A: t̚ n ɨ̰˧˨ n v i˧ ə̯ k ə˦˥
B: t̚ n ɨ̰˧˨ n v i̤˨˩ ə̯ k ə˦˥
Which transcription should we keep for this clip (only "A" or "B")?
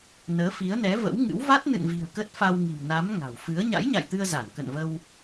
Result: B